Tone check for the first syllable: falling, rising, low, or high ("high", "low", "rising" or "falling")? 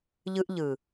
high